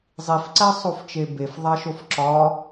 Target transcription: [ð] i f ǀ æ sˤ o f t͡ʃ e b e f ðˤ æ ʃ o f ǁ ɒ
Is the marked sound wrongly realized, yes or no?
yes